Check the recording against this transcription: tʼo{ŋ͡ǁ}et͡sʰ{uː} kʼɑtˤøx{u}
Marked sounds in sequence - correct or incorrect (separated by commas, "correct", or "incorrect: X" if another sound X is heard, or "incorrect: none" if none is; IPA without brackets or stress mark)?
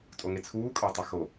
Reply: incorrect: ŋ, correct, incorrect: o